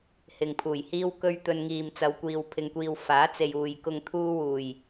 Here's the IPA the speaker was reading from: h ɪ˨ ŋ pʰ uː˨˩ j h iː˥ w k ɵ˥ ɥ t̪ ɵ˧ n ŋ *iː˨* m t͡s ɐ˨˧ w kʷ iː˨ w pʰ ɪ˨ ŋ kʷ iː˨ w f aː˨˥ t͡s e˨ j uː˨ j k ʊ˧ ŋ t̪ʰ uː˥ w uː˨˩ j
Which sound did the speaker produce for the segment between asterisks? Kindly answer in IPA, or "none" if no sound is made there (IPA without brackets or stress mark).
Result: iː˨